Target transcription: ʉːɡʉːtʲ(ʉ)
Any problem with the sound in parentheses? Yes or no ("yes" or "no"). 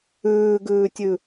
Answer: no